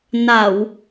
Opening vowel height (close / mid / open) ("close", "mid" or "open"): open